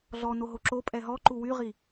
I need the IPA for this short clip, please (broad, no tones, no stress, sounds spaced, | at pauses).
ɮ ɔ n o ɦ o ǁ o pʼ ɛ ɦ ɔ ǃ u w y ʁ i